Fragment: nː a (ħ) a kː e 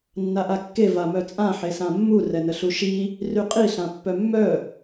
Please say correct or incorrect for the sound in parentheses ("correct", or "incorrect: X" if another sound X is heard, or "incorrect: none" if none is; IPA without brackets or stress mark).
incorrect: ʔ